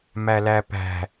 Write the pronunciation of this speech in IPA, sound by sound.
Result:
m æ l æ p æ̤

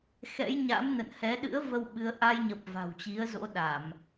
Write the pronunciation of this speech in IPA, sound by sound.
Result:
x ɛ̰˧˥ j ɲ a̰˧˥ m n ə̰˧˨ n h ɛ˨˦ ɗ ɨ̰˧˥ ə̯ v ə˧ w ɓ ɨ˨˦ ə̯ ʔ a˧ j ɲ ə˨˩ p̚ v a̤˨˩ w t͡ɕ i˨˦ ə̯ z o̰˧˥ ɗ a˧˩˨ m

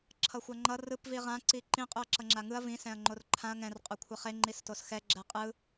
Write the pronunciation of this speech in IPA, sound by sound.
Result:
ǁʰ ʌ xʷ a ŋ͡ǃ ʌ r ɯ p v i ʁ ã ǀ i ǃ ĩ qʼ u ɐ̯ ǁ ʌ ŋ͡ǁ a ŋ ɯ ɐ̯ v ĩ s ɛ̃ ɐ̯ ŋ͡ǃ o r ǃʰ ã ɐ̯ ŋ ɛ̃ r qʼ o kʷʰ ɛ χ e ŋ͡ǃ i s t o s x ɛ ɡ͡ǁ ɛ qʼ ɯ

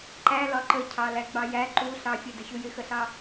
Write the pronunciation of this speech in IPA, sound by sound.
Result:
ǃ æ l ɒ ǃ ə cʰ ɑ l æ ɡ͡b ɑ j æ ǃ u ɬ ɑ fʲ ə d ə ɕ u j ɪ x ə ɬ ɑ

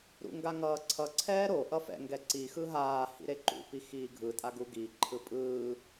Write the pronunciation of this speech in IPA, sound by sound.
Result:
ɾ ṵ ŋ ɡ a ŋ ʌː ǀʰ ʌ ǀʰ ɛː ɾ o ʔ ʌ f ɛ̰ ŋ ɡ ɛ ǀ i x ɯ ɦ aː h ḭ ɾ e ǃ ṵ p i x iː ɡʱ ɯ tʼ a ɡ u ɡ i ǃʰ ɯ pʼ ɯː

